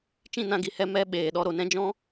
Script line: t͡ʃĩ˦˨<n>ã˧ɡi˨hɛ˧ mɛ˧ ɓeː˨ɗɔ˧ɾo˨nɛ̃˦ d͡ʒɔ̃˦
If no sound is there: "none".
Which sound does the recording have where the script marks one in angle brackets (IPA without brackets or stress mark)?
n